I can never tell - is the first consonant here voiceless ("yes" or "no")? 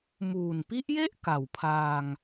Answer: no